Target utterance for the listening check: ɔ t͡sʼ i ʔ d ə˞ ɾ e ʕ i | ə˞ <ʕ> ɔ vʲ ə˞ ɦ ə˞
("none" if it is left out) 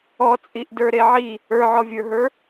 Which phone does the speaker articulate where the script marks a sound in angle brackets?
ʕ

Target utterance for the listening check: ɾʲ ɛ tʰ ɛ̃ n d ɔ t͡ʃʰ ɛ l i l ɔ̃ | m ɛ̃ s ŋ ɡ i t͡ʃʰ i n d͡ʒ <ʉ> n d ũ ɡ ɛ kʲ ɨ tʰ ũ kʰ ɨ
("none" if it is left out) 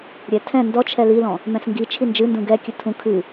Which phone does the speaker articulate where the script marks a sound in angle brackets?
ɨ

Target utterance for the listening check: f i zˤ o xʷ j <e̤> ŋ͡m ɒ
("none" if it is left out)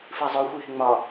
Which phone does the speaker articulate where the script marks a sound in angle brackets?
e̤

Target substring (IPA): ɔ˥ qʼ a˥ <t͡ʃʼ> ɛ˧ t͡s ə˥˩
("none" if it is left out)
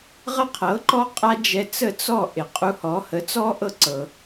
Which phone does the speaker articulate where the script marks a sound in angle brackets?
d͡ʒ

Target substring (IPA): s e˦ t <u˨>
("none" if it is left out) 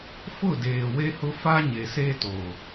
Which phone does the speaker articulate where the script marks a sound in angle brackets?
o˨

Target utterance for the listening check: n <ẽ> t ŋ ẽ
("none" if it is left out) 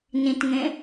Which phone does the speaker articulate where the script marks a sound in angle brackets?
ĩ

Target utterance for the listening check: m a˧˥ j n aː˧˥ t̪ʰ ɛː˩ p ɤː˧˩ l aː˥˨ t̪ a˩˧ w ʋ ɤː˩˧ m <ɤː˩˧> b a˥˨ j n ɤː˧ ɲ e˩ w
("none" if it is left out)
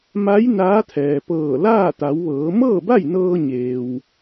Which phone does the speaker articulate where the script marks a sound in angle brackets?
ɤː˥˨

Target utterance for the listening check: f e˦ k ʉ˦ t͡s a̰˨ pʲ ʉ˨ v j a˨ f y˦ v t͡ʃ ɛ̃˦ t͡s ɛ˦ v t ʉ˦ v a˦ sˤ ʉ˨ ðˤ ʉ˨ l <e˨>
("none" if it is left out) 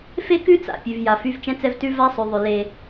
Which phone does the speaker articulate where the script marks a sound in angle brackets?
e˦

